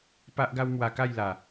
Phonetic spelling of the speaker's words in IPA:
p a˦ ʔ ɡ a˦ w m w a˨˩ k a˥˧ j l a˨˩

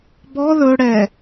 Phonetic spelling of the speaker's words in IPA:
b ɔ ð ɵ ɽ ɛ

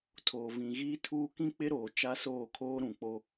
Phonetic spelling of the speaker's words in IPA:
tʰ oː˨ v ĩ˨ ɣ iː˦ tʰ uː˦ k ĩ˦ k͡p ɪ˦ ɾ oː˨ t͡ʃ a˦ s oː˦˨ kʰ oː˦ ɾ ũ˨ k͡p o˦

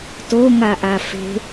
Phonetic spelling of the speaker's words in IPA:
t o ŋ a ʔ a f e̤

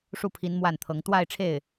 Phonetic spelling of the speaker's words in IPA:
ʂ u˥˩ pʰ i˧˥ n m w a˥˩ n t̪ʰ ɤ˧˥ ŋ t̪ w a˥˧ ɪ̯ ʈ͡ʂʰ e˥˩ ɪ̯

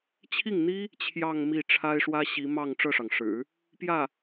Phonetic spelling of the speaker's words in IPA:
t͡ɕʰ i˥˩ ŋ n̪ i˥ | t͡ɕʰ j ɑ˥˧ ŋ m i˥˩ ʈ͡ʂʰ a˥ ɪ̯ ʂ w ä˥ ɕ i˧˥ m ɑ˥˧ ŋ ʈ͡ʂ ɤ˥˩ ʂ ɑ˩ ŋ ʂ ɻ̩˨˩˦ | p j ä˥˩

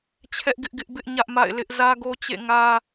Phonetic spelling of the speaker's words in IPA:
t͡ɕʰ ɛ˦ ʔ ɡ ɪ˦ ʔ ɡ ɪ˦ ʔ b ɪ˦ ʔ ɲ ä˦ ʔ m a̰˦˨ ɪ̯ l ɪ˦ ʔ z ä˦ ɡ o˦ t͡ɕ ḛ˦˨ ŋ ä˦

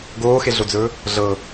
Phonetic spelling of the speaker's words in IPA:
ɡ oː x e ɮ o d͡z ɵː | ɮ ɤ

